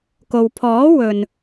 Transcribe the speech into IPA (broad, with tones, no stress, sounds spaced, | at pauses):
k o˨ w pʰ ɔː˨˥ w ɵ˨ n